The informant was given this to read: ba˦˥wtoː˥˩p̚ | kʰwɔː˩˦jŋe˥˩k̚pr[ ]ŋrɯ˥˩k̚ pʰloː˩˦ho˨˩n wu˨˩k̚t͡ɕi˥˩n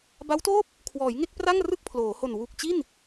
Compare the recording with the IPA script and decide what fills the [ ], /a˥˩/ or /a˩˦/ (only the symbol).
a˥˩